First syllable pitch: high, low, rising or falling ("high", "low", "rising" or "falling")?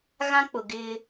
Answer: high